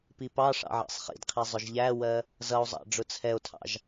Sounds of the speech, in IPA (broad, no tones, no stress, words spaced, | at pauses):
pipɑʂɑ̰ ʕɑ̰sˤχḭdqʰi zˤʊʒʎæwɜ | zʌo̯zˤɑ̰ ɖ͡ʐʊt͡sʰɛo̯tʰɑ̰ʒ